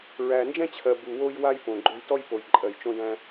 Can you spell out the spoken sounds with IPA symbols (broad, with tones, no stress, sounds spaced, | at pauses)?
ɹ æ˩ n d͡ʒ ɛ̃˥ t͡ɕʰ ɜ˩ b u˩ w o˧ j w a˧ j p õ˩ ɡ͡ǃ o˧ j t ɔ˥ j p o˩ j ǃʼ ɜ˩ j t͡ʃ õ˧ d æ̃˧